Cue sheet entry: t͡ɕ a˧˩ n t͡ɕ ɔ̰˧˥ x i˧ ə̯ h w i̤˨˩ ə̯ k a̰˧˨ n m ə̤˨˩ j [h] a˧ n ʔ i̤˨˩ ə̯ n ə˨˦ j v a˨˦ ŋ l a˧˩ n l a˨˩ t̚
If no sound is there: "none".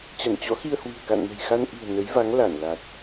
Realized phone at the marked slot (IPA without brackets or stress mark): x